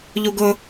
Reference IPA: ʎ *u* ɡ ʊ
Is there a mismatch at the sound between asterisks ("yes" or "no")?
no